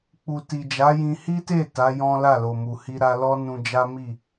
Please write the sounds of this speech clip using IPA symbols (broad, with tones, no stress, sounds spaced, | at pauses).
k͡p u˨ t i˨ d͡ʒ a˨˦ j ĩ˧ h i˦ t e˦˨ t a˨˦ j ɔ̃˦ l a˦˨ l o˨ m u˨ h i˧ ɾ a˧ l ɔ˦ n ũ˧ d͡ʒ a˦ m i˦˨